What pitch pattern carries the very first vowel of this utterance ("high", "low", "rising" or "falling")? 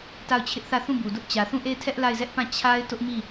falling